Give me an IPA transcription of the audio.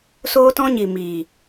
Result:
soː˦tɔ̃˦ɲi˨ miː˨

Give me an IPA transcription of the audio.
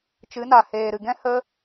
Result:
t͡ʃɨ˨˦na˨ heː˨ɾɨ˨ɡɛ̃˦ hə˦

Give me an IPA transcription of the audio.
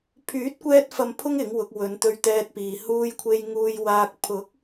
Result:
pʰyː˨˥t̚kʷɛː˧t̚fɐ˨mpʰʊ˧ŋ ɪ˨˥ŋwʊ˨˥k̚ wɵ˨˧nt̪ɵ˧ɥt̪ɛː˧t̚piː˨ huː˧jkʷʰe˧jŋuː˧j waː˧k̚ pʰʊ˨˥k̚

